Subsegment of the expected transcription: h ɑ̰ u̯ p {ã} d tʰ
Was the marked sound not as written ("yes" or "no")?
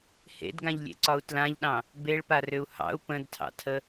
yes